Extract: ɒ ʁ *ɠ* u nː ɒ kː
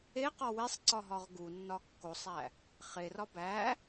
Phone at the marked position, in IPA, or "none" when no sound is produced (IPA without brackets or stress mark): ɡ